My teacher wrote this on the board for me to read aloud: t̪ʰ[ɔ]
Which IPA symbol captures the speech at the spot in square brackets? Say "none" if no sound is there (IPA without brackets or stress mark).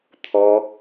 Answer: ɔ